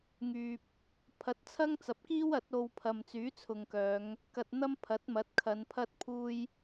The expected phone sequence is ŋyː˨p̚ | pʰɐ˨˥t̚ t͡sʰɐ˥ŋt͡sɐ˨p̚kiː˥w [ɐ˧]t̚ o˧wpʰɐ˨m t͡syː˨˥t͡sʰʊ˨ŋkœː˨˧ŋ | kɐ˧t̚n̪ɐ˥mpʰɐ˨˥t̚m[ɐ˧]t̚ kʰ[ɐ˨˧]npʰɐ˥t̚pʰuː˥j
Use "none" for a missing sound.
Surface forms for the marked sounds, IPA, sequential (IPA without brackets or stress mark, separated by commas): ɐ˨˥, ɐ˨˥, ɐ˨˧